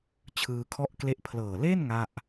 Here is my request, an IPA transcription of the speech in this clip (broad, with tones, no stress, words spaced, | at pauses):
t͡ɕʰɯː˧kʰɔ˥˩ʔkle˥˩ʔ pʰlɤː˨˩le˥˩n ŋa˥˩ʔ